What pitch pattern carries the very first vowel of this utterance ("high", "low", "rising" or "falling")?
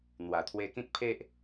low